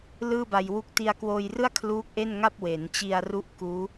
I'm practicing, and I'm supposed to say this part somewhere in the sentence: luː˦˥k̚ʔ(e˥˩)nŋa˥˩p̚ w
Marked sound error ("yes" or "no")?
no